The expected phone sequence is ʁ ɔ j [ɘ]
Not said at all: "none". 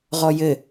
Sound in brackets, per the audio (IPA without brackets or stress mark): ɘ